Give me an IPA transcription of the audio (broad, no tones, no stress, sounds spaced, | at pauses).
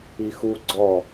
i x u ɡ͡ǀ ɔ